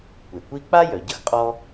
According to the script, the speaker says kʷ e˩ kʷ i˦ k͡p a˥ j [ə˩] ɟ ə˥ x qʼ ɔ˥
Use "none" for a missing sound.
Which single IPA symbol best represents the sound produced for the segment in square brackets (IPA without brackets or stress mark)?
œ˩